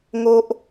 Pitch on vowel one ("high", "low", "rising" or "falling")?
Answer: high